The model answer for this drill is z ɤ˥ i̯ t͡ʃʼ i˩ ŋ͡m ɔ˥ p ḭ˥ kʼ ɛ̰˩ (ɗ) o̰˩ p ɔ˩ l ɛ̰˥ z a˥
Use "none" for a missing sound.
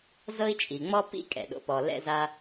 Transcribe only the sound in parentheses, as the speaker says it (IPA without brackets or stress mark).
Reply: ɗ